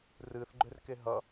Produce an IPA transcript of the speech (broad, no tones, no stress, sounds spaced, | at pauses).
r ɨ θ ɡ͡ǃ ø r k e ɦ ʌ